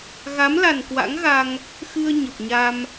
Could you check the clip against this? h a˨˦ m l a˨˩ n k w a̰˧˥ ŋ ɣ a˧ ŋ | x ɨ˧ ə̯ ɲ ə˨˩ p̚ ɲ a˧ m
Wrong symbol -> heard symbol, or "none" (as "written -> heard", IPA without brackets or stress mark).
h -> ɣ